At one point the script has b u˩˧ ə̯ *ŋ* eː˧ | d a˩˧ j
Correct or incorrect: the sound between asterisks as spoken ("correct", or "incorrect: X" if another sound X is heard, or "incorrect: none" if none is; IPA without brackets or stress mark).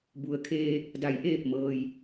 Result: incorrect: kʰ